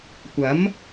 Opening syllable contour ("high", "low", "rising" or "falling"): rising